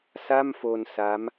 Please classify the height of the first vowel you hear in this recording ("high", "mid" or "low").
low